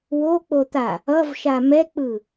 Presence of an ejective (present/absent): absent